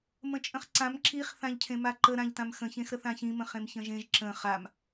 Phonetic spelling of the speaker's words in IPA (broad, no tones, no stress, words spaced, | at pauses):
mə̃t͡ʃʼə̃χǀãm ǁiχ θãʎcʰẽmaǃə ɾãʎtãmxə̃ çẽxɾəθãçĩ mə̃χẽmçə̃ʒẽʒ ǁə̃ χam